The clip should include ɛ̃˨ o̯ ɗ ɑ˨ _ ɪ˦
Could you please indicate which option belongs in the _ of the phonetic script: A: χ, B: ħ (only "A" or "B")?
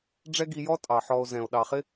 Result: A